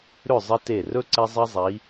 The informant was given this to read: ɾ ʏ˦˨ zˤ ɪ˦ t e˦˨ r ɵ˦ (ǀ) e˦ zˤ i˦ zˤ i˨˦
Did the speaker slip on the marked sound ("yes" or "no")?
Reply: no